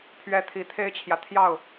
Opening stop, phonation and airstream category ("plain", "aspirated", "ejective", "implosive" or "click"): aspirated